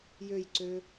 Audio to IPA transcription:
j ø j ǀ ø

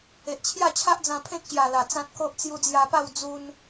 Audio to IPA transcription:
e˨ ʔ t͡ɕʰ j a˥˧ t͡ɕʰ a˦ ʔ d͡z ã˧ pʰ ẽ˦ k̚ ɕ j a˨˩ l a˨˩ t͡s ã˦ t̚ k o˦ ʔ t͡s j u˧ d͡z j a˧ p a˥˧ w d͡z u˧ n

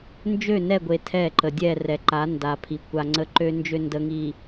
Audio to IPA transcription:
n d͡ʒ ø˦˨ n ɛ˦˨ ɡʷ e˨ tʰ ɛ˦˨ ǃ ə˨ dʲ ɛ˦˨ r ɛ˨ ǃ a˨˦ n d a˨ pʰ i˨ kʷ a˨ ŋ͡ǀ ə˦ ǃ ø˦ n d͡ʒ ø˦ n d ə˨ ŋ i˨

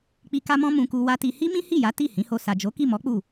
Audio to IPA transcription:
k͡p i˧ k a˦ m ɔ̃˦ m ũ˧ k u˧ w a˦ t i˧ h i˦ m ĩ˦ h i˦˨ j a˨˦ t i˦˨ h ĩ˨˦ h o˧ s a˨ d͡ʒ o˨˦ k i˦˨ m ɔ˨˦ k͡p u˦˨

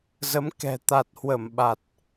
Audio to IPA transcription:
z ə˨˦ m k ɛ̤˨˩ t̪ a˨˩ t̚ h w ə˧˩ m ɓ a˨˩ t̚

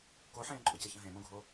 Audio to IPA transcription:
k o ħ ẽː ǃʼ ʊ c ə ç ə̃ ɦ ẽ m õ ɡʱ o

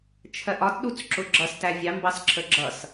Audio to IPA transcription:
t͡ʃʰ ɜ ʔ ɒ t ɗ u t͡s ǁ ʊ ɡ͡ǁ ʌ s t æ vʲ ɑ m b ɑ s ǁʰ ə ɡ͡ǁ ʌ s

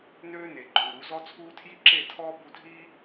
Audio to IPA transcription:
n øː˦ n e˨ ǃʼ u˨ ɾ u˨˦ z ɔ˦ t͡sʰ uː˦ tʰ j i˦ ǁ e˦˨ tʰ ɔː˦ b u˧ dʱ iː˦

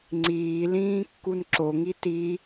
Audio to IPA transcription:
ŋ͡ǀ iː l ĩː kː u n ǁ o ŋ i t i

